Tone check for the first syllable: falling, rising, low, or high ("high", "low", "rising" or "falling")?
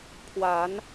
rising